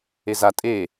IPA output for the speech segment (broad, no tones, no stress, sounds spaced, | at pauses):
e z a tʼ e